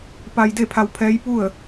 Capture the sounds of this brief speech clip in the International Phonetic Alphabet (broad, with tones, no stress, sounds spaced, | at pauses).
p a˧ j d e˥˨ pʰ a˧ w pʰ ɛː˧˥ j p u˥˨ ə̯